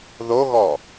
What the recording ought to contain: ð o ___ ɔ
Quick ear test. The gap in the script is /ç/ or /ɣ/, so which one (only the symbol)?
ɣ